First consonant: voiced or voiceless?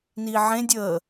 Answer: voiced